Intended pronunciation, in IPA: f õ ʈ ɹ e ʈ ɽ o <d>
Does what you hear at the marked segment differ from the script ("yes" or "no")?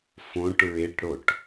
yes